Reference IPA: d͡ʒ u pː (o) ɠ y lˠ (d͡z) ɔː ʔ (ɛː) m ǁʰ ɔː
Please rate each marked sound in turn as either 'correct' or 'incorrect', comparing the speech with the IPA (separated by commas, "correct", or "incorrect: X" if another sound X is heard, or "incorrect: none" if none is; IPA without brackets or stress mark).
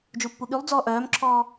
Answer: incorrect: u, correct, incorrect: œː